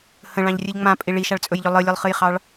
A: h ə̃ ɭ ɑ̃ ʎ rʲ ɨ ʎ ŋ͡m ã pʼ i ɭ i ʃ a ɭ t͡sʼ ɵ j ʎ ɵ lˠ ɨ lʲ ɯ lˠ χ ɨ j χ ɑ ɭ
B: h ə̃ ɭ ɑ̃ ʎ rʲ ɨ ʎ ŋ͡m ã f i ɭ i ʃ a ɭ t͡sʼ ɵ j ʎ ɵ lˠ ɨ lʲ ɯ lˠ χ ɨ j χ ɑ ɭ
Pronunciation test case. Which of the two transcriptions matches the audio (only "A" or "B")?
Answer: A